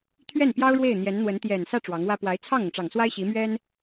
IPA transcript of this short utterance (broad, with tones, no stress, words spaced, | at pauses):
t̪ʰɥɛ˥˩npjɑ˥ʊ̯ ɻwe˥˩ɪ̯n̪jɛ˧˥nn̪wə˧˥n t̪jɛ˨˩nsä˥˩ ʈ͡ʂwɑ˧˥ŋwä˥ pwa˧˥ɪ̯ t͡sʰɑ˥˩ŋɤ˩ŋʈ͡ʂɑ˨˩ŋswa˥ɪ̯ ɕi˧˥mɥɛ˥n